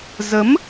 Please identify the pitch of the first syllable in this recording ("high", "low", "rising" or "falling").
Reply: rising